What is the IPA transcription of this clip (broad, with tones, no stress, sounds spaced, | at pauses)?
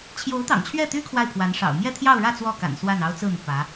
t͡ɕʰ j o˧˥ ʊ̯ t̪ ɑ̰˨˩ ŋ t͡ɕʰ ɥ ɛ˥˩ t̪ y˥ kʰ w a˥˩ ɪ̯ pʰ w a˧˥ n ʂ ɑ̰˨˩ ʊ̯ m j ɛ˥˧ t̪ʰ j ɑ˥˧ ʊ̯ ɻ ä˥˧ t͡s w ɔ˥˩ k a̰˨˩ n s w a˥˩ n ɑ˥ ʊ̯ t͡s ɹ̩˥˩ n̪ y˩ p ä˧˥